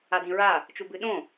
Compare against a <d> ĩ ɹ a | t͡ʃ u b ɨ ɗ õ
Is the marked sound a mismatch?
no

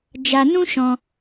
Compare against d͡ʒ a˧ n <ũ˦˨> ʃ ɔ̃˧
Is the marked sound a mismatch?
yes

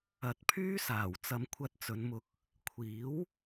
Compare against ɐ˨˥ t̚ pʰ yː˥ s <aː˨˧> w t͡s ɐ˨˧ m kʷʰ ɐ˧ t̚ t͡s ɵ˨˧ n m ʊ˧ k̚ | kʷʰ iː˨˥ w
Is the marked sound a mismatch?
yes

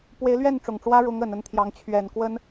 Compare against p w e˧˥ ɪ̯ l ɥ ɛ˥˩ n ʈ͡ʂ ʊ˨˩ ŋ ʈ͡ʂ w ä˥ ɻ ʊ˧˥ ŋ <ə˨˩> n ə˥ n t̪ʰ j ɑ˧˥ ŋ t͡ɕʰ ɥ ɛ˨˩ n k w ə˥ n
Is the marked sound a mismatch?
no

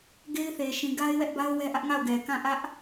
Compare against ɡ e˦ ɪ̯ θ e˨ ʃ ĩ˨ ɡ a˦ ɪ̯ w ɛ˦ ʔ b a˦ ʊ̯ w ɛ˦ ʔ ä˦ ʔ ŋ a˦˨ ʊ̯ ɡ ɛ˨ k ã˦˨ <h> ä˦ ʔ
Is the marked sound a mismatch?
yes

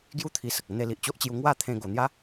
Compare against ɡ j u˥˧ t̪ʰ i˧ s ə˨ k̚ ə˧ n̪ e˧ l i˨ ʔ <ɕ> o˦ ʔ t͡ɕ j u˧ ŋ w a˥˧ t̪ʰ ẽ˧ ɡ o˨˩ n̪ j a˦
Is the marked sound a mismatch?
yes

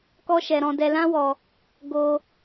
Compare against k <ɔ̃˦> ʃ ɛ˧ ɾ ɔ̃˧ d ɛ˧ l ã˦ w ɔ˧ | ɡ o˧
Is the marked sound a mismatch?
yes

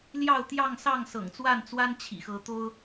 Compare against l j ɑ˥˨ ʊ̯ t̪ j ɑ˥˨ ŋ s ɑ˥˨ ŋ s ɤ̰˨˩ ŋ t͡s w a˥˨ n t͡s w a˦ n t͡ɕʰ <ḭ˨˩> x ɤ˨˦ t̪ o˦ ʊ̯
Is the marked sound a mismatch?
no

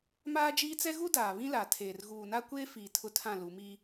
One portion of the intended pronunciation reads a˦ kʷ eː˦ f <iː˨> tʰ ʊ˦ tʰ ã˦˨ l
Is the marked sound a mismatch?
no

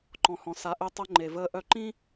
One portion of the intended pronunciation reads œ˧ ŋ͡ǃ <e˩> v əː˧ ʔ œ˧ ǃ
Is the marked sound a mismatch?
no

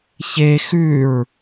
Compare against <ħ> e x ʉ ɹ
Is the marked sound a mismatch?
yes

